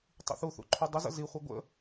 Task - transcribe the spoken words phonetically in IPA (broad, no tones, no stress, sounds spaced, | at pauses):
tˤ ḭ θ u θ ṵ ǃʰ u dˤ ə z ə̰ z i χʷ i ɡʷ ə̰